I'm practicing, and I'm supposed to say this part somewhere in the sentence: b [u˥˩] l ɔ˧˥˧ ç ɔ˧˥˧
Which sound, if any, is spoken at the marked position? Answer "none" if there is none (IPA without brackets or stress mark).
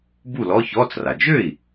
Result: u˥˩